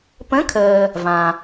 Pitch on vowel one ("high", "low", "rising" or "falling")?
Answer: rising